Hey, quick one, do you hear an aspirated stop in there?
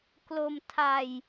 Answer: yes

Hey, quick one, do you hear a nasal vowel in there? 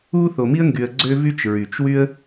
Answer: no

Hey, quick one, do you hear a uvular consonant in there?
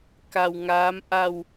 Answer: no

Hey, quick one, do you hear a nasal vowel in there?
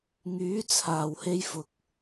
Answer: no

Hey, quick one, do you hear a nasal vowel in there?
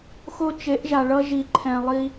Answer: yes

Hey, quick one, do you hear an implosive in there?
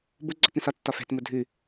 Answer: no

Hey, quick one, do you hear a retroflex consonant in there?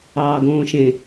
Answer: no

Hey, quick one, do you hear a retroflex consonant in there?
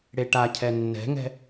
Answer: yes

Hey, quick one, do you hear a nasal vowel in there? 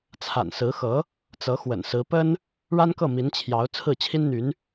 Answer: no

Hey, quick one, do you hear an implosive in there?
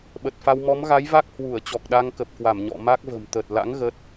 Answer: yes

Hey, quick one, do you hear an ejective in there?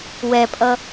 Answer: yes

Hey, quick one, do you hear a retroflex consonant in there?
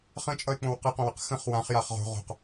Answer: no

